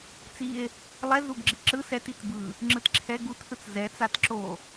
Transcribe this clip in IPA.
t͡sie̯ | lˠɛ zuɡɡ͡ǁiǁɯ sɛtit bɯ | ŋ͡ǁɯtǁʰɛ ɡutθɯt͡s zɛt͡sat ǁo

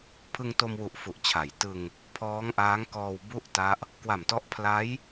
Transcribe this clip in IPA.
pʰɯ˧ŋto˧mwu˨˩ʔ fu˨˩ʔ t͡ɕʰa˩˦j tɯ˧ŋ | pʰɔː˦˥ŋʔaː˦˥ŋ kɔː˧wbu˥˩ʔ ta˦˥ʔ | kwa˨˩mtɔ˦˥ʔ pʰla˦˥j

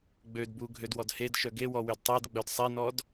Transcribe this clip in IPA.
ɡ͡bødbu ɡʱødwɔdhedʃœ ɡewɔ wødtˤedɡ͡bœd sˤenɔd

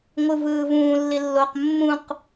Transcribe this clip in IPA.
ŋʷɯvɯːvũː lːilːoq mːũq

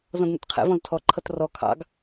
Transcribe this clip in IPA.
zɔ̃dnɛ̰tqʰɛ̰ vɔ̃ztʰɔ ǃʰʌtrɔ kʰɑ̰ɡ

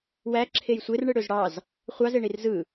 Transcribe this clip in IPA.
wæ ǁʰejsʷer ɳɯɽøzɽɑz | χʷɑzeɳir zɯ

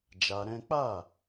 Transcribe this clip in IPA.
d͡ʒa˧ɾɛ̃˦ k͡pa˦˨

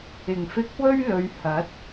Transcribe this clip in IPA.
ɪ˨˩ŋfɪ˧k̚ wɵ˥ɥlɵ˨˧ɥ hɐ˨˥t̚

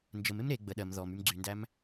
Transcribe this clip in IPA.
nd͡ʒəm emɾe ɡ͡bə ɗɜm ðɔmym ɡ͡ǀyndæm

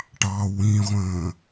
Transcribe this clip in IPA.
ʈɑ wĩʁʷə̃ː

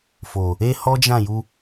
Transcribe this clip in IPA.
fo˨ | e˦hɔ˦d͡ʒã˦˨ju˧

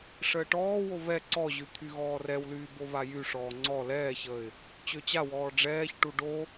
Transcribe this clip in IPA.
ʂəːʈɔːwo βɛ ǀɔʑy t̪ʰyɣɔːrɛwlyː boβajyʂɔː ŋ͡ǀɔ lɛːçəːɪ̯ | t͡ɕøt͡ɕawɔː ɖ͡ʐɛːçʈu ɖo

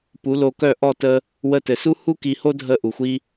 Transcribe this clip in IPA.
pu˨˦lo˧kœ˦˨ ʔɔ˦˨tə˦ | wə˧tɘ˨su˦ hu˧ki˨ho˧ dʱə˧ ʔu˨xʷi˦

